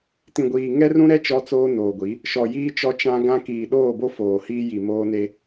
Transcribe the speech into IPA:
t ĩ˨ ɡʷ iː˨ ŋ ɛ˦ r ũ˦ ɾ ɛ˦ t͡ʃ ɔ˦ t͡s oː˦ n oː˨ ɡʷ i˨˦ | ʃ ɔ˨ j iː˦ t͡ʃ ɔ˦ t͡ʃ ã˦ ɡ ã˦ k iː˨ ɗ oː˦˨ b o˦ f oː˨ h iː˦ j i˨ m oː˦ n e˦

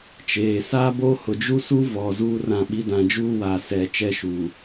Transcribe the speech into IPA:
t͡ʃ eː˨ s a˦ b o˦ h ʊ˨ d͡ʒ u˦ s u˦ v ɔ˨ z uː˦ r ã˦˨ ɓ i˦ d ã˨ d͡ʒ uː˦ w aː˨ s ɛ˨ t͡ʃ ɛ˦˨ ʃ u˨

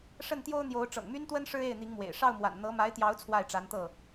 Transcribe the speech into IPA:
ʂ ə˥˩ n t̪ j o˥ ʊ̯ n̪ j o˧˥ ʊ̯ ʈ͡ʂ ɤ̰˨˩ ŋ m y˥ n t̪ w ə˥ n ʂ ɻ̩˥ e˥˩ ɪ̯ n̪ i˧˥ ŋ m w ḛ˨˩ ɪ̯ ʂ ɑ˥˩ ʊ̯ m w a̰˨˩ n n̪ ɤ˧˥ m a˧˥ ɪ̯ t̪ j ɑ˧˥ ʊ̯ t͡sʰ w a˥˩ ɪ̯ ʈ͡ʂ a˧˥ n t̪ ɤ˥˩

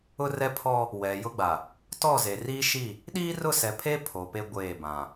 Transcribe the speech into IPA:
ʊ˦ r ɛ˦ pʰ ɔ˦ | w ɛ˨ j ʊ˦ ɡ͡b a˨ | t ɔ˦˨ z e˨ r iː˦ ʃ i˦˨ | ɗ iː˦ r ʊ˦˨ s ɛ˨ pʰ e˦ pʰ o˨ p e˦ ɡʷ eː˦˨ b ã˨

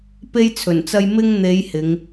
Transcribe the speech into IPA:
p e˥ j t͡sʰ ɵ˨˩ n t͡s ɐ˥ j m ɪ˥ ŋ n̪ e˨˧ j h ɪ˨˧ ŋ

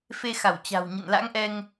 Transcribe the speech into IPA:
f e˧ x a˧˩ w t͡ɕ a̤˨˩ w ɲ ə̰˧˨ n l a̰˧˥ ŋ ʔ ɛ˧ ŋ

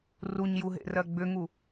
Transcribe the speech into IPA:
r u ɲ j u ɦ ḛ r ɜ ɡ͡b ʏ ŋ u

